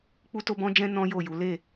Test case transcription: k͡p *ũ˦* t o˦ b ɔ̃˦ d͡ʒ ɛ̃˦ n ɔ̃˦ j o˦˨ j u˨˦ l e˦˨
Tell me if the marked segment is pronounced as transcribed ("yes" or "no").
no